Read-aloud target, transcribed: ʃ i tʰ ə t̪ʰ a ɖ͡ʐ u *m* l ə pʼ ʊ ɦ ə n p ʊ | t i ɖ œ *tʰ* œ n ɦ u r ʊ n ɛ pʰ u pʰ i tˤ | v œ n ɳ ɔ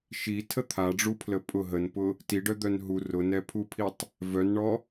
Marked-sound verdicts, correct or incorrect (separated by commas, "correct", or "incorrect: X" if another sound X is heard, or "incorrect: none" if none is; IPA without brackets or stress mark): incorrect: pʰ, incorrect: d̪